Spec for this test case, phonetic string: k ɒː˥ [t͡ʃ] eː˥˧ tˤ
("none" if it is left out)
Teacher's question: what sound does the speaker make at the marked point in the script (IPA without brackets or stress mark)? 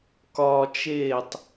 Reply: t͡ʃ